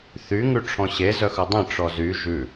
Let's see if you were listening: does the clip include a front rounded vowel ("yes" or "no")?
yes